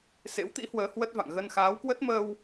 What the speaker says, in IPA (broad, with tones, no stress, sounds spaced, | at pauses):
s ḛ˧˥ w t̪ ḭ˧˥ h w əː˨˦ h w ə˦˥ t̚ v a̰˧˨ ŋ ɣ ə˧ n x aː˨˦ w k w ə˦˥ t̚ m əː˧ w